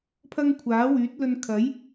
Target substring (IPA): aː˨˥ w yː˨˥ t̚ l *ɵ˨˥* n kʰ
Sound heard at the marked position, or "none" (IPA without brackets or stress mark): ɵ˧